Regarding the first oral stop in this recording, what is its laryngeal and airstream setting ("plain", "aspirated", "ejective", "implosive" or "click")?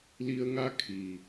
aspirated